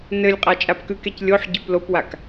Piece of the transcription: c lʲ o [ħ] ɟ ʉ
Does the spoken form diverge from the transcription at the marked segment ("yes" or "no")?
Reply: no